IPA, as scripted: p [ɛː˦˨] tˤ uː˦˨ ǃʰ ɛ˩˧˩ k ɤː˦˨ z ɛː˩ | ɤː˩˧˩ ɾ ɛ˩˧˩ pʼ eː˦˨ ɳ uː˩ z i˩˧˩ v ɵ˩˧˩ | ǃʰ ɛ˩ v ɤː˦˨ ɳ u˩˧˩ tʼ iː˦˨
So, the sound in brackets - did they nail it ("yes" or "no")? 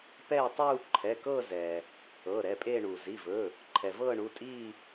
yes